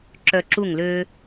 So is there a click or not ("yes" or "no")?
yes